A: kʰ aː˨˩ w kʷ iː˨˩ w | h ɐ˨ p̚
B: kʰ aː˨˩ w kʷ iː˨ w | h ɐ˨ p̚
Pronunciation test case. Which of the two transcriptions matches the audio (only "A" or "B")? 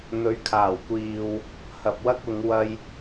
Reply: B